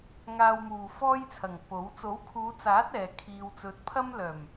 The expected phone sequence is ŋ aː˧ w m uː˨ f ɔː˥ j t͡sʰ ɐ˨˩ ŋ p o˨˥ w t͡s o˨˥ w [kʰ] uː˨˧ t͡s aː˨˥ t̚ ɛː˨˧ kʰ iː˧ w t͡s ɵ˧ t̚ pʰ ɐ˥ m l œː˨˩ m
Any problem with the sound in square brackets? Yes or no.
no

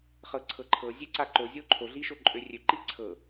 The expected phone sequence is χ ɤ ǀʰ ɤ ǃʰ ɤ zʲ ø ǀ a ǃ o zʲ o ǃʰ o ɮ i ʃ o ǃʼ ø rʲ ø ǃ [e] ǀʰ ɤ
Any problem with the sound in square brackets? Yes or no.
yes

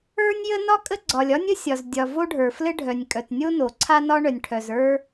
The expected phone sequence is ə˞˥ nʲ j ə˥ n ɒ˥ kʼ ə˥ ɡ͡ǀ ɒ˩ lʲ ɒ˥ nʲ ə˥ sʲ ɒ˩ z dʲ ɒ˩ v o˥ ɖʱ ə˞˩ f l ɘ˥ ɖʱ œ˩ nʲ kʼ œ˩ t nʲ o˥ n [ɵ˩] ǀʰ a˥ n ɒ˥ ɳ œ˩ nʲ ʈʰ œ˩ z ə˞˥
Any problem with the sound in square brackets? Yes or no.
yes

